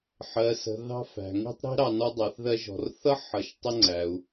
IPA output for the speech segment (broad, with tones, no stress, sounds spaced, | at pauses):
ħ ɜ˩ s ə̤˩ ð ɑ̤˧ f æ̤˩ ŋ i̤˧ tˤ ɾ i̤˧ ɾ ɑ˩ n ɔ˧ dˤ ɑ˩ θ ð ɜ˧ ʒ ɔ̤˩ r θ ʌ˥ ħ ʌ˩ ʃ tˤ ə˧ ŋ͡ǀ æ˩ u̯